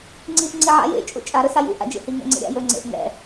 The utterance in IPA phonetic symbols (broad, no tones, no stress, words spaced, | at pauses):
ŋ͡ǀiʔ ŋ͡ǀiʕa̰j ḛ t͡ʃʼṵt͡ʃʼa ɾɵsajṵ ʔa̰d͡ʒḛhi ŋɛ̰ŋ͡ǀḛɾʲa̰ jɵ ŋ͡ǀḛʔ ŋɛ̰